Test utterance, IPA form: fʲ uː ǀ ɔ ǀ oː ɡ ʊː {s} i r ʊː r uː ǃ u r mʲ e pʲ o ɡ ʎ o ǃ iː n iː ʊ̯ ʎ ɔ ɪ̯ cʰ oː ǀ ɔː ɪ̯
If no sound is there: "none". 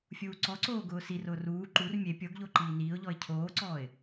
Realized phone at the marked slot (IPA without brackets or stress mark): s